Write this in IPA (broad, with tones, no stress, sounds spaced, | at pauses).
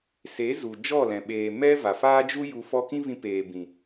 s e˨˦ z u˨ d͡ʒ ɔ˦˨ l ɛ̃˨ ɓ eː˨ m ɛ˦ v a˨ f aː˦ d͡ʒ u˦ j u˧ f ɔ˧ k ĩ˦ v ĩ˧ p eː˨ b ĩ˨